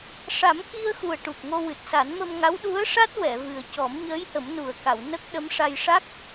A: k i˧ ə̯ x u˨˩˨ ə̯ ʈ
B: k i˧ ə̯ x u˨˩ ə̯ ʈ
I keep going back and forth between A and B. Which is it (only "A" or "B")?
B